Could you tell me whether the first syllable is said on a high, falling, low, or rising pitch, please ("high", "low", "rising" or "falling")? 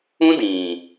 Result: high